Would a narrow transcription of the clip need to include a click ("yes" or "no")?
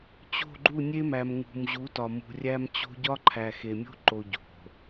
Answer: yes